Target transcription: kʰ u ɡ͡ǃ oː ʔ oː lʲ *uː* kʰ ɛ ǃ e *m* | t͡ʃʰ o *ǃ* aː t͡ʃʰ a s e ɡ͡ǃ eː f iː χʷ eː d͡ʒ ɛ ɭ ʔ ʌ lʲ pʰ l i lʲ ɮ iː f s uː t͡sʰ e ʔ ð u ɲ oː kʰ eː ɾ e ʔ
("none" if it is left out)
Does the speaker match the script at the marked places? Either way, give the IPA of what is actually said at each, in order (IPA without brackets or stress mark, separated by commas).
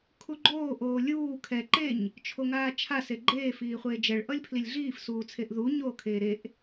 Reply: uː, ɲ, ŋ